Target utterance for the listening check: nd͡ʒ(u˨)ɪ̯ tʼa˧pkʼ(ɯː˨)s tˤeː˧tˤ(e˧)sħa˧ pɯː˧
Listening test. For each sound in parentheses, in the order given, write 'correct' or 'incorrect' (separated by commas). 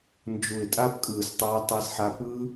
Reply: correct, correct, correct